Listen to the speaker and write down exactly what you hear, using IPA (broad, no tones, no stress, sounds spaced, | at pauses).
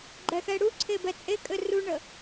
ɡ͡ǃ ɛ x ɛ ɽ u ǀʰ e b ɛ t͡sʼ e kʼ ɘ r u ɳ ə